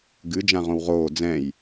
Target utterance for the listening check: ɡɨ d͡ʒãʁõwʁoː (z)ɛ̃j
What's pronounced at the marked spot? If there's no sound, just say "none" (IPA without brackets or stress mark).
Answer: d͡z